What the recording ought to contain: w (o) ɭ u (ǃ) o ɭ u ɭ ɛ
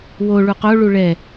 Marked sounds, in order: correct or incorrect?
correct, incorrect

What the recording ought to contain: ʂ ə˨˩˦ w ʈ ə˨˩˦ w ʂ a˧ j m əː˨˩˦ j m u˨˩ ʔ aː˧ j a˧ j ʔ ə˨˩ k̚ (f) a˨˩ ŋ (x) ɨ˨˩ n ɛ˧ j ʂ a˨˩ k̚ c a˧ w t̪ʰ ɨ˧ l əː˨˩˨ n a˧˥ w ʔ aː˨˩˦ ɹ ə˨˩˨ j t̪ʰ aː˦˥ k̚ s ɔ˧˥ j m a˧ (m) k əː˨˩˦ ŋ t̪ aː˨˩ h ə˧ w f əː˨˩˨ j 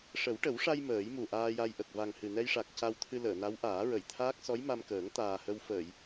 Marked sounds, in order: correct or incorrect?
incorrect, incorrect, correct

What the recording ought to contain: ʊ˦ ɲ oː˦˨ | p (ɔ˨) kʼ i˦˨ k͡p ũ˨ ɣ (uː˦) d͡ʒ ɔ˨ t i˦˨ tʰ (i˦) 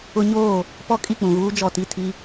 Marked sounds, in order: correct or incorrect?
incorrect, correct, correct

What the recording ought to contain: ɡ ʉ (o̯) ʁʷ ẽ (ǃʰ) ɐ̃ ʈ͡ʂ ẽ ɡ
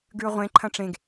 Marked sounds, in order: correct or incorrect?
correct, correct

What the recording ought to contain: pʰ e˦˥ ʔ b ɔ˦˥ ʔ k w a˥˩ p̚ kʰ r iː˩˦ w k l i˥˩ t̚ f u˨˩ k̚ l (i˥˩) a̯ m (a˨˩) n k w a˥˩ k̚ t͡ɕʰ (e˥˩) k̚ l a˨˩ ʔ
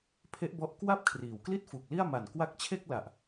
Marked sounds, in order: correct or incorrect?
correct, correct, correct

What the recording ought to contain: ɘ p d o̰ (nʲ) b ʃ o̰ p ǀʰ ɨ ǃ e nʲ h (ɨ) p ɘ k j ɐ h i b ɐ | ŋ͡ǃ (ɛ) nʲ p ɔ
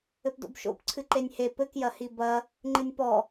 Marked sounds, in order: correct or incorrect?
incorrect, incorrect, incorrect

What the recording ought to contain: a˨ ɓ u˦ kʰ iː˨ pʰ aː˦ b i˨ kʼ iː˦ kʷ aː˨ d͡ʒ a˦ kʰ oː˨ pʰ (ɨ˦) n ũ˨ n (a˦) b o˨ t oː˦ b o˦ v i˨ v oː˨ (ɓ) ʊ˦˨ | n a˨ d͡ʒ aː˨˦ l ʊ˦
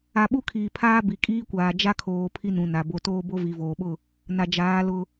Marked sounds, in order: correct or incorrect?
incorrect, incorrect, correct

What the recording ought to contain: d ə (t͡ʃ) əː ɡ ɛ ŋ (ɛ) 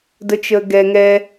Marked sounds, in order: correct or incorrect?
correct, correct

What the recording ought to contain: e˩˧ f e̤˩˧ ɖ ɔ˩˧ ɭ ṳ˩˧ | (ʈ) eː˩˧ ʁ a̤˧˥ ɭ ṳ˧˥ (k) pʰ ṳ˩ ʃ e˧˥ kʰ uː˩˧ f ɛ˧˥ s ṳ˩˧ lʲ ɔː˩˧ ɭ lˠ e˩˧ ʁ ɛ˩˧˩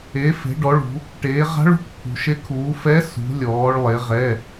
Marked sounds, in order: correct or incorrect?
correct, correct

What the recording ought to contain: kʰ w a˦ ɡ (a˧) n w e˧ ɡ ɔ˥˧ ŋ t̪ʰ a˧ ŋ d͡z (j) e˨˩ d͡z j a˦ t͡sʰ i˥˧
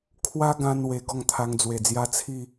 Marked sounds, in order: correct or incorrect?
incorrect, incorrect

